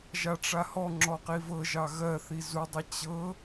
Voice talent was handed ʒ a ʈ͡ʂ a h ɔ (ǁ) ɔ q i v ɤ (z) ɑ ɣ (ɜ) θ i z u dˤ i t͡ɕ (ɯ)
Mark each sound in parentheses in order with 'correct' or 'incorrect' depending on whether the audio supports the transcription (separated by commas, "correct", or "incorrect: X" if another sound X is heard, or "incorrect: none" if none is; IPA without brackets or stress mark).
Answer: incorrect: ŋ͡ǁ, incorrect: ʒ, correct, incorrect: ɤ